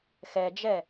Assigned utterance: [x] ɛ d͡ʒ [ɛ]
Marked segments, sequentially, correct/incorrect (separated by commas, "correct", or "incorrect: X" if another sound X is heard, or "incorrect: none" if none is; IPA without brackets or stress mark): correct, correct